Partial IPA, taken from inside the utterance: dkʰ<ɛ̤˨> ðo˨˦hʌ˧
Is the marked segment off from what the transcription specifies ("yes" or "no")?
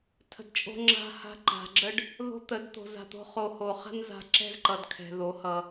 no